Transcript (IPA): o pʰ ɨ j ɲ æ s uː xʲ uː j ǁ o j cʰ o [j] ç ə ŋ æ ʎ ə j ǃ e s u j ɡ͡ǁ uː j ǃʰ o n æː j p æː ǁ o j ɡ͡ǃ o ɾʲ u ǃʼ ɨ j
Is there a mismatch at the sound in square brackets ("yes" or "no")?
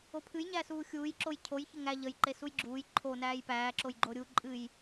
no